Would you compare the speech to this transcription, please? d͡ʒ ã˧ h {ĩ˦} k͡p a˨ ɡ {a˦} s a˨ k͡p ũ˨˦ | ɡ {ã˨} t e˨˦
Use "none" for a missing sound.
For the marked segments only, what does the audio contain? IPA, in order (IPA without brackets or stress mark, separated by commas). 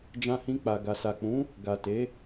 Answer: ĩ˧, a˨, a˨